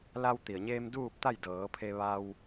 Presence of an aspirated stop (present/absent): present